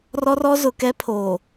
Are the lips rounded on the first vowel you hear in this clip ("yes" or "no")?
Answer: yes